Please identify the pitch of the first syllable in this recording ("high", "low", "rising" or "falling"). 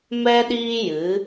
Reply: high